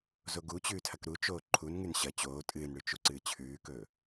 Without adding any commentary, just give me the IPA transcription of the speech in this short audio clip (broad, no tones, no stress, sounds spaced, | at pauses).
z o ɡ u t͡ɕ ʉː tʰ ɐ k ɾ u t͡ʃ oː ǃʰ u n ŋ ʉ n ɕ ɐ t͡ɕ oː tʼ ɨː n ɽ ʉ t͡ʃ u ǀ ɨː t͡ɕʰ ʉː k ɵː